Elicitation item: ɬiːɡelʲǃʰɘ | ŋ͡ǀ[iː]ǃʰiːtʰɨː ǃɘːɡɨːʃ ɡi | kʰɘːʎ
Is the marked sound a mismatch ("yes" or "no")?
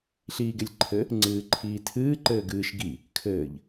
yes